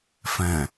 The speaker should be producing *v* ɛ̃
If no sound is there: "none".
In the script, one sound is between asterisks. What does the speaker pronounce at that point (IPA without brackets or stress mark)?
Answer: f